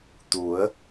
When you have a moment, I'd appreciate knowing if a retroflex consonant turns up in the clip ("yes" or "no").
no